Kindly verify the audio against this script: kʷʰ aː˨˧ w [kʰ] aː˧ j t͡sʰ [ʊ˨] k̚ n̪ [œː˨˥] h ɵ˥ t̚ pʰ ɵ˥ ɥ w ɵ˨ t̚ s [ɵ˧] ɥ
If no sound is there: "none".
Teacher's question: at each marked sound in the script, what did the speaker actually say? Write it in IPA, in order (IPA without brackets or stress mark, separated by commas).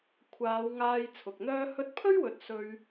ŋ, ʊ˨, œː˥, ɵ˧